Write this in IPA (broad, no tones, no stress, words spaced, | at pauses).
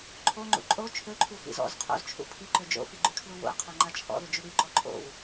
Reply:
ǃʰoŋ͡ǃṵ ǃʼo t͡ʃʰøǃʰu fḭzɔ̰z qʰo̰zt͡ʃʰṵ pʰiǃø d͡ʒo̰fiɡ͡ǃykʰlu wo̰ɐ̯qʰo ŋ͡ǃat͡ʃʰɔ̰ðø d͡ʒuɽyǃɔ ǃʼo̰w